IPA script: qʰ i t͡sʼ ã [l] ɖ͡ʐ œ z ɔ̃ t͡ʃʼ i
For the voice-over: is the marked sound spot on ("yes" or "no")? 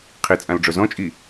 yes